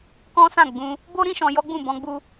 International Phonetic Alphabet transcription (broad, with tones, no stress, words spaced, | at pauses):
kɔ̃˦sã˦˨ɡ͡bũ˧ | bo˦ ɾĩ˦ʃɔ̃˧jɔ˦ɡ͡bũ˦˨ bɔ̃˧ɡ͡bu˧